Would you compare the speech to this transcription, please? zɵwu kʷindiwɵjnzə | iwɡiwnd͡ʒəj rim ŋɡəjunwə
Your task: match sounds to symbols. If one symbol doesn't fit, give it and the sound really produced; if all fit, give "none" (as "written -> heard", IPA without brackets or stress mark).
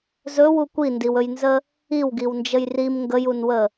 none